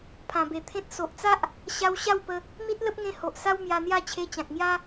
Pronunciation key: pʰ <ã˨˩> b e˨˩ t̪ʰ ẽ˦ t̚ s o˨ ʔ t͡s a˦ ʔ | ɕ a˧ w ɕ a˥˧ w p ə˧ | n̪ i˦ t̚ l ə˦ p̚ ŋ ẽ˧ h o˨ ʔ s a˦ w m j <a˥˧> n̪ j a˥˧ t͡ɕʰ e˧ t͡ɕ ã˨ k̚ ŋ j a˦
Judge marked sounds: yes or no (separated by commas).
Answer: yes, no